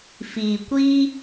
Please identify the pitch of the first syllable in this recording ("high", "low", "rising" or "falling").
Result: low